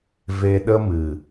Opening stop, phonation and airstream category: implosive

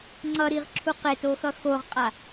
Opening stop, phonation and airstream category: click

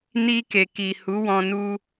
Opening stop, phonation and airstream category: plain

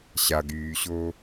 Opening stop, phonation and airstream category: plain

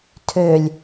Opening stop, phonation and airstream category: aspirated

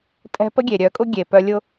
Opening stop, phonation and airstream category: ejective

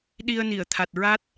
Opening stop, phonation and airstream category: implosive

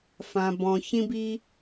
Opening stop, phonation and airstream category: plain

